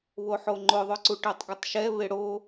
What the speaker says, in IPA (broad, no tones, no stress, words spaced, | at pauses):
βoħoŋ͡ǃʊðˤʊ ǀuʈetˤɡʊtˤʃɛ βɪɽo